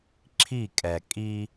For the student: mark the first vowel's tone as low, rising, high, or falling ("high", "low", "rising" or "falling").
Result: falling